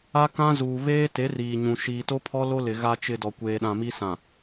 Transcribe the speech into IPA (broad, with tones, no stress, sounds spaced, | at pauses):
a˦ k ã˦ z uː˨ β eː˦ t e˨˦ r iː˨ ɲ ũ˨ ʃ iː˨ t o˦ pʰ ɔ˦ l o˦ l ɪ˨ ɣ a˨ t͡ʃ ɪ˨ d ɔ˨ kʷ eː˨ ɗ ã˨ m i˦ s ã˨